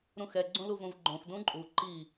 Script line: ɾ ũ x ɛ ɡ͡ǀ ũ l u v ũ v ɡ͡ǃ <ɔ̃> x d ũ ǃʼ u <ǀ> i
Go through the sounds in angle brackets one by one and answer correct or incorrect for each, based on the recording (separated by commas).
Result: incorrect, incorrect